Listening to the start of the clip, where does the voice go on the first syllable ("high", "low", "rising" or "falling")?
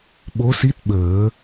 rising